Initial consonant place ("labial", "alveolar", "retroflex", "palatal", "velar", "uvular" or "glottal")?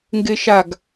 velar